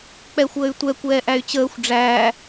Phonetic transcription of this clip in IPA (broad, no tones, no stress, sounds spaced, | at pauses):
k͡p ɛ xʷ əː y̯ tʷ ɛ kʷ ɛː ʔ æ y̯ t͡ɕ əː xʷ ɖ͡ʐ æː